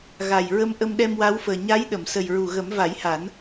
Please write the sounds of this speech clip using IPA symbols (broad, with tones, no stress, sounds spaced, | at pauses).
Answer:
ɣ a˨˩ j ɹ ə˧ m ʔ ə˧ m ɗ ɛ˧ m w a˧˥ w f əː˨˩ ɲ a˧˥ j ɗ ə˨˩˨ m s ə˨˩ j ɹ u˨˩ ɣ ə˨˩˦ m v a˨˩˦ j h a˨˩˦ n